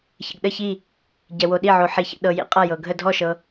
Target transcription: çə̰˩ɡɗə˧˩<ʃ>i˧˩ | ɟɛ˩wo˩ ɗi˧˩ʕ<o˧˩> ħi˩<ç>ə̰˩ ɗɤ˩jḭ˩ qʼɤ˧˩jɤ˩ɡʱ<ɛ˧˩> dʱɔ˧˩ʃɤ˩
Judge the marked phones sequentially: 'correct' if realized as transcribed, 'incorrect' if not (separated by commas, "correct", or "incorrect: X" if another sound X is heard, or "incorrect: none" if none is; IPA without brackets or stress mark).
incorrect: ç, incorrect: o˩, correct, incorrect: ə˧˩